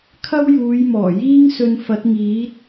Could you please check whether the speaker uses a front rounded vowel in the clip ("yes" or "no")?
no